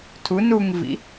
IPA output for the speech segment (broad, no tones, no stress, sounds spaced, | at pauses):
tʰ u n u ŋ v ḭ